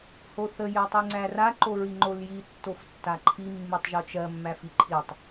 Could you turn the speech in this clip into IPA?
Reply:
hoθə jɜtˤiŋ͡ǀæra ǃoɹiŋ͡ǃolji tːoftːaǃʰi mːitˤʒot͡ʃɜ mːæfiǃʰitˤ

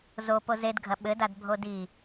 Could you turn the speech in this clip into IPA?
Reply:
zo pozedɡʱɐ ɓɘdad bʱodi

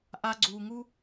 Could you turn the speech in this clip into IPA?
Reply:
ʔa˧ ɡ͡ǀuː˧ŋu˥

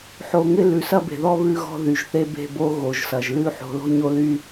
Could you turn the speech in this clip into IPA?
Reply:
ħo˨ŋɪ˦ lʉ˨sɐ˦be̤˨ðɔ˦ βʉ˦ɣɔ̤˦ ðy˨ʒθe˦be̤˦˨bo˦ ɣo˨ʒsɐ˨ʒlʉ˦ ħo̤˨lo̤˦ɲo˦ly˦

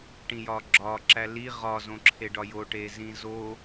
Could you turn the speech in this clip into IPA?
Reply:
ʈĩjɒɡ͡ǁɒ ǁæli ʁɒ zõǁʰeɖɒjo ʈezĩzo

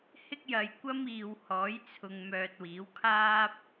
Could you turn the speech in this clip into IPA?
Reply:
hɪ˥k̚jɐ˨jkʷɐ˥m iː˨whɔː˨˥jt͡sʰʊ˨ŋ mœː˨t̚wiː˨˥wkʰaː˥p̚

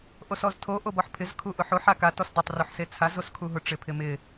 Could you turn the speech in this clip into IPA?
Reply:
ʔosɔztʰo ʔobɔħpʰɪz kʰuʔʊħoħ aka tɔsdɪtˤ ruħset͡sʰa zoskʰuɦʊ ʈ͡ʂɪpʰɪmɪ

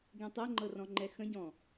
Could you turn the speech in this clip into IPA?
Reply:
ɡẽtˤɛŋ͡ǃɤ rɔ̃ŋ͡ǃɛxə̃ɟɔ̃

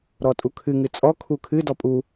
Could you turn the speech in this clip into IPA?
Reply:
ɾɔtʼukʰɨ ŋɨt͡sʼɔ kʰukʰɨ dɔpʼu

